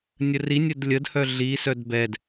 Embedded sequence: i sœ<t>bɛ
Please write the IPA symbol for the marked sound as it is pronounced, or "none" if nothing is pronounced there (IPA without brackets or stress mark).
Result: d